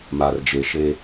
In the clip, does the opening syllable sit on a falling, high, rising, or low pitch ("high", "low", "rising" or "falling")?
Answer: low